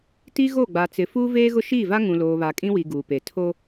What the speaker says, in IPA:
t i˦ ɣ o˦˨ ɡ͡b a˨ t͡s ɪ˨ f uː˦ v eː˦ ɣ ʊ˦ ʃ iː˦˨ v a˦ ŋ ũ˨ l oː˨ β a˨ kʼ ĩ˦ w i˨ ɡ uː˨ p e˨ tʰ o˦

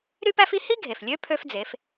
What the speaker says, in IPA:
ɾ y˥ p æ˥ f i˥ h i˥ ɡʱ e˩ f lʲ ø˧˥ pʰ ø˧ f d͡z e˩˧ f

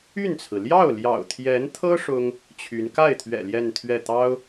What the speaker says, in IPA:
y˥˩ n t͡sʰ ɹ̩˩ l j ɑ˥˩ ʊ̯ l j ɑ̰˨˩ ʊ̯ t̪ʰ j ɛ˧˥ n t̪ʰ ɤ˥ ʂ ʊ˥ ŋ | t͡ɕʰ y˧˥ n k a˥˩ ɪ̯ t̪ʰ ɥ ɛ̰˨˩ l j ɛ˥˧ n t̪ʰ ɥ ɛ˥˩ t̪ ɑ˥ ʊ̯

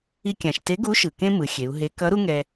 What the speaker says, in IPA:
i˧ kʲ ã˩ ʃ t e˧˥ ɡ u˧˥ ʃ ɯ˩ k ẽ˥ m ɯ˩˧ xʲ e˩˧ u̯ ɦ e˧˥ k ʌ˧˥ ɾ u˥ ŋ ɛ˧

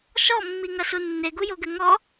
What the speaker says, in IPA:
ʃ ɔ mː i ŋ ɐ s u nː e ɡ u j o ɡ ɘ ŋ ɔ

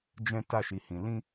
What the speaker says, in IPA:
d͡ʒ ɛ̃˧ t a˧ ʃ i˨ h ĩ˨ l ĩ˧

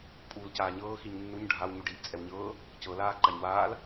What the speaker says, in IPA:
pʼ uː l c aː ɲ ɤː x i ɲ nː u ɲ ɖʱ a w ɲ u ɖ iː ʔ t͡sʼ ɛ w ɲ ɤː | c ɤ l aː ǃ a ɲ w aː l

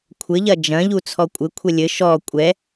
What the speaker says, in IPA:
kʷʰ ɘ ʎ ɐ d͡ʒ ɐ̃ ʎ u t͡sʰ ɔ kʷʼ ɘ kʷʰ ɛ lʲ ɘ ʃ ɔ kʷʼ ɛ

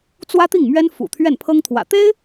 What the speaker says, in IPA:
t͡s w ä˥ t̪ i˥˩ ŋ m ɥ ɛ˥ n f ṵ˨˩ t̪ʰ ɥ ɛ˥˩ n pʰ ɤ˥ ŋ t̪ʰ w ä̰˨˩ t̪ e˥ ɪ̯

